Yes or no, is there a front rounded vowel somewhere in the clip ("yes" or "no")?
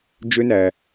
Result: yes